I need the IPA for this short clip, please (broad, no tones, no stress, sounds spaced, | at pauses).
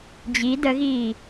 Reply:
d͡ʑ i d ə ɣ iː